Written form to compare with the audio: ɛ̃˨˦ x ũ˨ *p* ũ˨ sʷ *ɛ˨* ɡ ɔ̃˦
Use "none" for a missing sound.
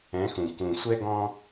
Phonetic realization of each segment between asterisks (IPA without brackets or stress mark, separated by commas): k, ɛ˦